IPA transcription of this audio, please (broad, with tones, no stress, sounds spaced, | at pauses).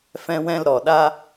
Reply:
f ɛ̃˧ w ɛ̃˧ l ɾ ɔ˨ ɗ a˦